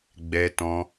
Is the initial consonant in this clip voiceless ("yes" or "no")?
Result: no